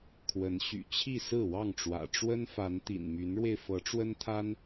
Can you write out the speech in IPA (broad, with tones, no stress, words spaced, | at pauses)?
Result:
kʰwə˨˦n ɕy̰˨˩t͡ɕʰi˥˨ sɹ̩˥˨wɑ˥˨ŋʈ͡ʂwä̰˨˩ ʈ͡ʂwə˦nfa˨˦n t̪ḭ˨˩nmy˨˦nɻwe˧ɪ̯ fɤ˨˦ʈ͡ʂwə˦nt̪ʰa˦n